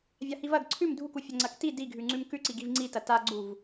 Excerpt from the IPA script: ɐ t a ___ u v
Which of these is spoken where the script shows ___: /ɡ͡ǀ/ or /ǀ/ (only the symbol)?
ɡ͡ǀ